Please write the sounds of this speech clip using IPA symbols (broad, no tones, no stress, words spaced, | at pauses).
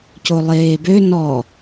colˠeːbø nɔ